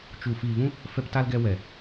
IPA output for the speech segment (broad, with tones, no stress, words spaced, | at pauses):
t͡ʃu˨ fiː˨vũ˧ | fɛ˧pta˧lɡɛ˧ wɛ˨